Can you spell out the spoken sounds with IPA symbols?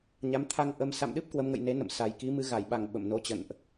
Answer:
ɲ a˨˦ m t̪ʰ a˧ ŋ ʔ ə˧ m s a̰˧˨ m ɗ ɨ˦˥ p̚ k w ə˨˦ m ŋ ə̰˧˨ j n e˨˦ n ə̰˧˨ m s a˨˩ j k i˨˦ m ɨ˧ ɣ a˧˩ j ɓ a˧˩ ŋ ɓ ə̰˧˨ m n o˨˦ t͡ɕ ə̰˧˨ n ʔ

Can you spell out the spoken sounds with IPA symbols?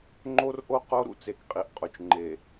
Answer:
ŋ͡ǃ o˦ r ʔ o˦ q o˦ ɾ ṵ˦ t͡s e˨ k qʼ i˨ ʔ qʼ o˨ t͡ʃ ŋ͡ǃ e˨

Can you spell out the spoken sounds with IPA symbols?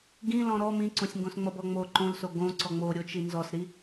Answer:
ɡ ĩ l ɔ̃ ɾ ɔ m ĩ ǀ õ sʲ ŋ ɡ õ s ŋ͡m ʌ b ɔ ŋ͡m o ǃ õ l s o ɡ õ ǀ ɔ ŋ͡m o ɾʲ o t͡ʃ i n z ɔ s ɾ i

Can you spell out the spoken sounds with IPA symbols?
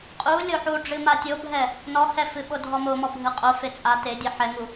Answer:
qʼ u lʲ o ħ u ɖ͡ʐ ɨ m a tʲ o bʱ ɛ | n ɔ h ɛ f ɨ ɓ o dʱ ɔ m o m ɔ bʱ ɨ qʼ o f e t͡sʼ a t e dʲ ɛ ħ ɛ ŋ u

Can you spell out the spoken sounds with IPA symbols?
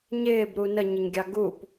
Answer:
ɲ ɪː b ɾ u n ə ɲ ɪ ɲ ɡʲ ɑ ɡ u p

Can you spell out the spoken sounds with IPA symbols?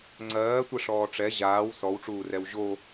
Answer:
ŋ͡ǀ ɜː tʷ ɛ ʂ ɔː ʈ͡ʂ ɛ ʑ aː w s ɔ w ʈ͡ʂ uː r ɛ w ʑ o

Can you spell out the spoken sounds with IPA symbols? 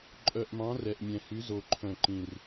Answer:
ǃʼ œ˨˩ ʔ m ɑ̃˨˥ r ɛ˨˩ ʔ mʲ ɛ̃˨˩ h y˨˥ z o˨˩ ǃʰ œ̃˨˩ ǃ ĩ˨˩ r

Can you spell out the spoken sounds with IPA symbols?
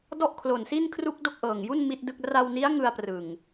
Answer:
d ɔ˥˩ ʔ kʰ l o˨˩ n s i˥˩ n kʰ r u˥˩ k̚ d o˥˩ k̚ ʔ ɤː˨˩ ŋ j u˥˩ n m i˥˩ t̚ d ɯ˥˩ k̚ r a˧ w n i˦˥ a̯ ŋ ɯ˧ a̯ p r ɯ˨˩ ŋ

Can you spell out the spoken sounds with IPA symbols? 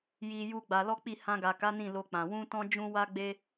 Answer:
j i˧ j u˧ ɡ͡b a˧ l ɔ˦ k͡p i˦˨ h ã˧ ɡ a˨ k a˨˦ n ĩ˦˨ l o˧ k͡p ã˨ w ũ˧ t ɔ̃˧ d͡ʒ ũ˦ w a˦ ɡ͡b e˦

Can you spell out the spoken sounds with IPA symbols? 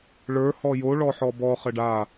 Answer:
ɭ ə˞ h ɔ j o ɭ ɔ ħ ɔ b ɔ χ ə ɖ a

